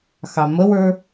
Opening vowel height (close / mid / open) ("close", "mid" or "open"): open